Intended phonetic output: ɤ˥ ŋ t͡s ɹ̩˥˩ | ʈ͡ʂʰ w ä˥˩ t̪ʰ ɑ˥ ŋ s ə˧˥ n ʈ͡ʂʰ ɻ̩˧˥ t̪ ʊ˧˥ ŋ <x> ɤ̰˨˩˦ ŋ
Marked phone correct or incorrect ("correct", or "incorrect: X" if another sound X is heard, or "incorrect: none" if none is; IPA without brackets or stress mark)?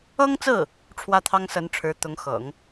correct